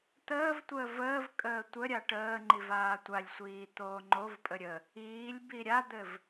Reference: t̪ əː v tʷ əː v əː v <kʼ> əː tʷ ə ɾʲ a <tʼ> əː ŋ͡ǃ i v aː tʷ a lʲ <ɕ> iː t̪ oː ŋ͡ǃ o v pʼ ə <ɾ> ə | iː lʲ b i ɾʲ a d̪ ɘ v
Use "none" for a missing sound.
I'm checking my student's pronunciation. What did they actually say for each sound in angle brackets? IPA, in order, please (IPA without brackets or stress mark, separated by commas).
kʼ, ʈ, sʷ, ɾʲ